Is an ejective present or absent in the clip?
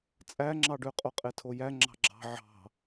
present